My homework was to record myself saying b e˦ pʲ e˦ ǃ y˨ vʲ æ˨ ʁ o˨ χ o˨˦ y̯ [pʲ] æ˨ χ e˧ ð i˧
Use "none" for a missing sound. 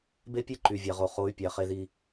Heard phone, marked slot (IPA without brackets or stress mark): pʲ